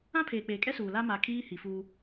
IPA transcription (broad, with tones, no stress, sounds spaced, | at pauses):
ã˦ pʰ eː˨ k͡p eː˨ kʼ ɛ˦ s uː˨ l a˦ m a˨ kʰ iː˦ h i˨ f uː˦